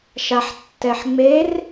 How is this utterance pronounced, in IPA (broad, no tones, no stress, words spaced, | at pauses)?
ʃaħtːɛħŋ͡mer